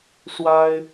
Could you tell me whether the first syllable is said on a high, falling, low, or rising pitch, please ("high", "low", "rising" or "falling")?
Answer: high